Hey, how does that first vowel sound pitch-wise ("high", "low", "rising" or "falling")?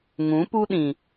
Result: rising